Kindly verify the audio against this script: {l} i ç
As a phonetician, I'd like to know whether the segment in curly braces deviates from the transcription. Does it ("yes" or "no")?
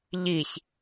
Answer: yes